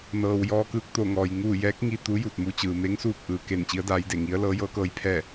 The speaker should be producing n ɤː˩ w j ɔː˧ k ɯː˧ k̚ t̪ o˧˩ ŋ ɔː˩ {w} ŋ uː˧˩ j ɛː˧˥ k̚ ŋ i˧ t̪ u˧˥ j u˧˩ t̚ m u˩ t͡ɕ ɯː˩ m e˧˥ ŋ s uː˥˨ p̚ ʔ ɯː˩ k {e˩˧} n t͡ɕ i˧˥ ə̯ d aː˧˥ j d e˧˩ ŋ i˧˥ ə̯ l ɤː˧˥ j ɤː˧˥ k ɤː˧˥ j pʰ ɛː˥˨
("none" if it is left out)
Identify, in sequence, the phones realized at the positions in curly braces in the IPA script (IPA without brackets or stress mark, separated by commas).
j, e˧˩